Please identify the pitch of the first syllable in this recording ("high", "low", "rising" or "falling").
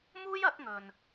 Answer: high